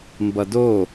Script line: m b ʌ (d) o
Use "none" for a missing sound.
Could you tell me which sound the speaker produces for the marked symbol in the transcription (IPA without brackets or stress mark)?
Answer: d